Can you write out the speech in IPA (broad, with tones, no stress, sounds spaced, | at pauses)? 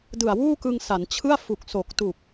d ɯ˨˩ a̯ w uː˥˩ k ɯ˧ ŋ s a˩˦ n t͡ɕʰ ɯ˥˩ a̯ f u˨˩ k̚ s o˨˩ k̚ t u˨˩ k̚